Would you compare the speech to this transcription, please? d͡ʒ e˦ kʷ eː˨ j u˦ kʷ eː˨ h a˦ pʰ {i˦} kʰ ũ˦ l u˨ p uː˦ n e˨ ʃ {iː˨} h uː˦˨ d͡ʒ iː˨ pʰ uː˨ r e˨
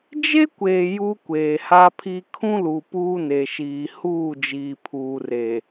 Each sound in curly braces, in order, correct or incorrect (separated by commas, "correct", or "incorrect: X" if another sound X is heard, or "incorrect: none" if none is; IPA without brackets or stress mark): correct, correct